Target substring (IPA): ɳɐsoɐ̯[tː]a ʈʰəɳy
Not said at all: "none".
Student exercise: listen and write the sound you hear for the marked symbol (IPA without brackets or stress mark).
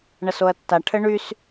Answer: tː